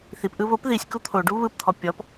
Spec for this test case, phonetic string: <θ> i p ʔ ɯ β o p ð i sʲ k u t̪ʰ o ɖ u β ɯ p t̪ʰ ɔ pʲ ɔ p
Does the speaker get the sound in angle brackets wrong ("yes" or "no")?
no